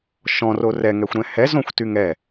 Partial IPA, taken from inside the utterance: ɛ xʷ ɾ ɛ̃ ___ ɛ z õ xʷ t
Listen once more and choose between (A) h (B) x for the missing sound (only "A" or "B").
A